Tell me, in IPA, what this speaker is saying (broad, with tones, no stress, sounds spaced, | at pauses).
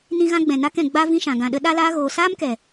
n ĩ˧ ɣ ã˧ ɡ͡b ɛ̃˨ n a˧ k ɛ̃˨ ɡ͡b a˧ v ĩ˧ ʃ ã˨ ɡ ã˨ ɗ ə˧ ɗ a˧ l aː˧ ɣ oː˨ s aː˦ m k ɛ˨